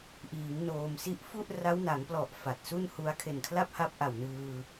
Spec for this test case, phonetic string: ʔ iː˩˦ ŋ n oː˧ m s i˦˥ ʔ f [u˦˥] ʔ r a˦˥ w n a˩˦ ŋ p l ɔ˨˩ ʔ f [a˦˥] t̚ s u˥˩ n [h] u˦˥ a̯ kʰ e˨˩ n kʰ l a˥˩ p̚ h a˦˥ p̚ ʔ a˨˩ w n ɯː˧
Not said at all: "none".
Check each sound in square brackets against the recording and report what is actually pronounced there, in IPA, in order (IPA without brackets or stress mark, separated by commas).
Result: u˥˩, a˨˩, h